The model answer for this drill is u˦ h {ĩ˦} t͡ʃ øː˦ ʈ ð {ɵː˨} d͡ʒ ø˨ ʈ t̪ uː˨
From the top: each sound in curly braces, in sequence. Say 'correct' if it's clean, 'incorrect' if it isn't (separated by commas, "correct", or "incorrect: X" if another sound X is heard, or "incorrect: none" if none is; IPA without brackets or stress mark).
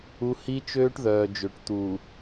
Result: incorrect: i˦, incorrect: œː˨